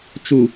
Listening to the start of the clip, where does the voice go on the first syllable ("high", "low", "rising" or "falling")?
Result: low